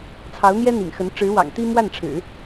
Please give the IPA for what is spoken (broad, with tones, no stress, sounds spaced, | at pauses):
t͡sʰ ɑ˧˥ ʊ̯ n̪ j ɛ˥ n̪ ḭ˨˩ ŋ x ə˧˥ n ʈ͡ʂ ɻ̩˧˥ w ɑ̰˨˩ ŋ t̪ i˥ m w a˥˩ n ʈ͡ʂʰ ɻ̩˨˩˦